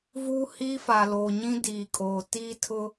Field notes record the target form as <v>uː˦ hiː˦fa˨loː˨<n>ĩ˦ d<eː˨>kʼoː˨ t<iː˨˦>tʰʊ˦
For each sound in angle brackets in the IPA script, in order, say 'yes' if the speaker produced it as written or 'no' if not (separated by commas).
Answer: yes, no, no, no